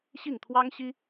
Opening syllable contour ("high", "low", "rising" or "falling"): falling